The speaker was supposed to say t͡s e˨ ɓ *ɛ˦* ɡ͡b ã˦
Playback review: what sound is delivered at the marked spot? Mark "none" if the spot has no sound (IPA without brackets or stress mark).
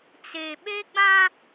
e˦